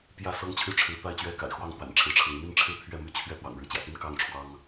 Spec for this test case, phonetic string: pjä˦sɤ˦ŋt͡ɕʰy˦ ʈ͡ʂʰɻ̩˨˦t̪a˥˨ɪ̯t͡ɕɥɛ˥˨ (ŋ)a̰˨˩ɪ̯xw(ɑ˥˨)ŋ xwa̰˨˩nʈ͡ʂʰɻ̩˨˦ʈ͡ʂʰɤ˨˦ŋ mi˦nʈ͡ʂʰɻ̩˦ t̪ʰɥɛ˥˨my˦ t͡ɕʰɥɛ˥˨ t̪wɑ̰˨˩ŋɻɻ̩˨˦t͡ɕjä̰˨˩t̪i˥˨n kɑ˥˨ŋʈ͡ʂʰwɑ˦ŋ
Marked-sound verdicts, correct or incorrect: incorrect, correct

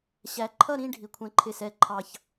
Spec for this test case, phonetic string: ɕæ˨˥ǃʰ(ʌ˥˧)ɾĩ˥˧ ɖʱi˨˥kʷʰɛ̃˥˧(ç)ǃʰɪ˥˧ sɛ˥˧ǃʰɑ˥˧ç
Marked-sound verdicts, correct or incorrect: correct, incorrect

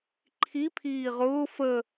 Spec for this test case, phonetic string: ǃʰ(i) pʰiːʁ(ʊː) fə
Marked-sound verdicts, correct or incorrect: correct, correct

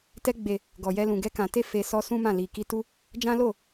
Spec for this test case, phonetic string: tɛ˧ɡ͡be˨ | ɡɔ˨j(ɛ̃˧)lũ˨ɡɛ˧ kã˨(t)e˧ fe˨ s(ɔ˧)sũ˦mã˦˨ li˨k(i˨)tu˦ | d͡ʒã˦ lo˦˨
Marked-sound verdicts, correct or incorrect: incorrect, correct, correct, incorrect

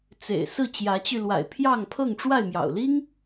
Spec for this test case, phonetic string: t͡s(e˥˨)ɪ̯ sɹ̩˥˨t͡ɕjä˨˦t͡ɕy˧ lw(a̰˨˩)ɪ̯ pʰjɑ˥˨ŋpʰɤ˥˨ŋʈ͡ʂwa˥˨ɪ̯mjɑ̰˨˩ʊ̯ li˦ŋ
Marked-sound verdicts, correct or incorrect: incorrect, correct

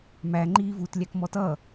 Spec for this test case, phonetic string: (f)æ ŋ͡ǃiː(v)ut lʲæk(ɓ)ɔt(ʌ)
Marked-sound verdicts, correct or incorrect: incorrect, correct, incorrect, correct

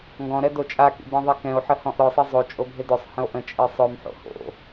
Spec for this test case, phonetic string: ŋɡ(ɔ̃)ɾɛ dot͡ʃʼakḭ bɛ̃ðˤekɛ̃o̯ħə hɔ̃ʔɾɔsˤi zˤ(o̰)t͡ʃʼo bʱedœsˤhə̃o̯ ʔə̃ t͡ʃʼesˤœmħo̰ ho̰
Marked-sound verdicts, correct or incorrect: correct, incorrect

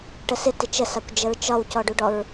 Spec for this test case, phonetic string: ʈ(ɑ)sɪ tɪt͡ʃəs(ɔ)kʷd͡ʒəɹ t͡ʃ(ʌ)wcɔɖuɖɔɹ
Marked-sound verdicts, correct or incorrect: incorrect, incorrect, incorrect

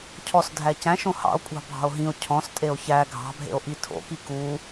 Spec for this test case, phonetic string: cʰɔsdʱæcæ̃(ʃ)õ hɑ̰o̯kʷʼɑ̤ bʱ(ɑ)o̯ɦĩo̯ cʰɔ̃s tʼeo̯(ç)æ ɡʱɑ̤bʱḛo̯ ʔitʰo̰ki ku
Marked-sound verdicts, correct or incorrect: correct, incorrect, correct

